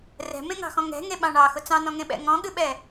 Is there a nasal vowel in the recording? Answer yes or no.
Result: yes